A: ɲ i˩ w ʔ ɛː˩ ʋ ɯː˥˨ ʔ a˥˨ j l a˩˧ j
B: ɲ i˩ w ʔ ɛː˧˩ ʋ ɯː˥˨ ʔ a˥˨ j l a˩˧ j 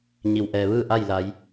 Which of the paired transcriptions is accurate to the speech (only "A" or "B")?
A